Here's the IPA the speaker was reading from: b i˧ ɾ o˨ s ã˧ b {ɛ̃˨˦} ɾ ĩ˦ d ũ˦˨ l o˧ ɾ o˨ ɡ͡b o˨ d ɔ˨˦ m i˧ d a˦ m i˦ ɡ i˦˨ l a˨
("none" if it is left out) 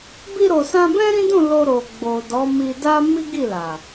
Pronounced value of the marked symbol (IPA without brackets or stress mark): ɛ̃˦